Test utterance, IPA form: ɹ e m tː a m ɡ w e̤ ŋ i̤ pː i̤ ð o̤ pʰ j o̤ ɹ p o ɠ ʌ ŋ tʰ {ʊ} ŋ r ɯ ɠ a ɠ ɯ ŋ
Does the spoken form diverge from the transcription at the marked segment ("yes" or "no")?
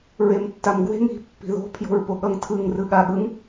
yes